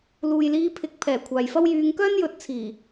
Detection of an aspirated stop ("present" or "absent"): present